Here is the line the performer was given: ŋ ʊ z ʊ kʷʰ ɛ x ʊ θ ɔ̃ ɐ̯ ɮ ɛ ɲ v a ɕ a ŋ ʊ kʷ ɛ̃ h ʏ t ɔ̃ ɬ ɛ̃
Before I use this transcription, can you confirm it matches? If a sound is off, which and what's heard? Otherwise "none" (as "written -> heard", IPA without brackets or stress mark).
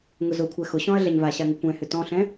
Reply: θ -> ɕ